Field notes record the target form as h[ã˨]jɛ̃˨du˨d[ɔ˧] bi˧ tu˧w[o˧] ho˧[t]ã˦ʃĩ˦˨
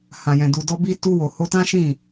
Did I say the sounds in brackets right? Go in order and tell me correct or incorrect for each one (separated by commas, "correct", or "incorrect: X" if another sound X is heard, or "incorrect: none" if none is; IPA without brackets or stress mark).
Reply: correct, correct, incorrect: o˨, correct